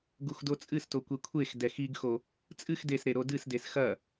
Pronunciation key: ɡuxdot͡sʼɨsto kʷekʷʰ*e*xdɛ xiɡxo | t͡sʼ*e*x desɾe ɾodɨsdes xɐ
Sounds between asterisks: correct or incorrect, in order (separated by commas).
correct, incorrect